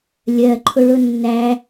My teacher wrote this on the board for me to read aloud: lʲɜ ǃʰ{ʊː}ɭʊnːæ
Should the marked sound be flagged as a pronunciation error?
yes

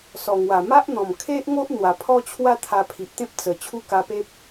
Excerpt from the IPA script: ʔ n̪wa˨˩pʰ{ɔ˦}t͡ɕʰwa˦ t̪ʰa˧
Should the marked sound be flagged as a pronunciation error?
no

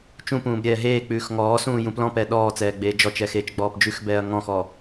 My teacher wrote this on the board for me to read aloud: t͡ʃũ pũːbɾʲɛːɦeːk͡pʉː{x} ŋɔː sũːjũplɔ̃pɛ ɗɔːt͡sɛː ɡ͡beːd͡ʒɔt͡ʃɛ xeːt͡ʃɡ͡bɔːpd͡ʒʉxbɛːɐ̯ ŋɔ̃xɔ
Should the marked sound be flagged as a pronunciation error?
no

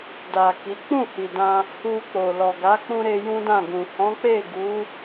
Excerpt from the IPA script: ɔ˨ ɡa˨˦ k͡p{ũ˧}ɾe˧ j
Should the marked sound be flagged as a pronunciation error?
no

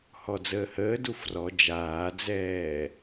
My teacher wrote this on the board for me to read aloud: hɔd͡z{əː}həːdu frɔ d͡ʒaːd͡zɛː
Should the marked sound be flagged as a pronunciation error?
no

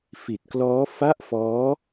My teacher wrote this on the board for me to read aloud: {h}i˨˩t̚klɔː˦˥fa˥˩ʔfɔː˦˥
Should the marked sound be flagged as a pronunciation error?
yes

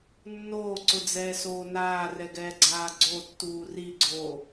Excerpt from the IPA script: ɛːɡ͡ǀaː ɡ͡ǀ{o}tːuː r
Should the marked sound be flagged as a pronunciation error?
no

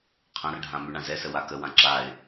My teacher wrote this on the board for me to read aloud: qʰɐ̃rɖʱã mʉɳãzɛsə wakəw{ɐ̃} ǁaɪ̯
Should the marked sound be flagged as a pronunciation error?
yes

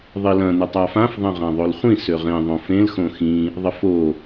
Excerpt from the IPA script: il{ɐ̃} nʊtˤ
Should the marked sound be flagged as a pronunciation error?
no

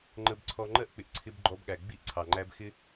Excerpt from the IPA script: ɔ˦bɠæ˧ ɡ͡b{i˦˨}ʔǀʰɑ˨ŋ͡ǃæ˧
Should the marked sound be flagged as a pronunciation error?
no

